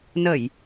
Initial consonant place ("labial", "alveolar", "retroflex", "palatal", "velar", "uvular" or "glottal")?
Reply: alveolar